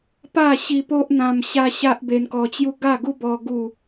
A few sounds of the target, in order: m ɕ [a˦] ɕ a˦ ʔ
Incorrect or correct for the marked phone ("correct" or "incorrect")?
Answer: correct